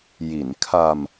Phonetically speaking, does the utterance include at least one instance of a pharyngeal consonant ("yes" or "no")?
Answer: no